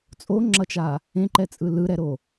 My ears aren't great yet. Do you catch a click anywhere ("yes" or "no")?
yes